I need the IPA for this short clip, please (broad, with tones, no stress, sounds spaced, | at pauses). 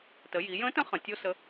t ə˩˧ j i˩˧ j ə̃˧˥ t ə̃˧˥ χ ə̃˩ tʲ o˥ s ə˧˥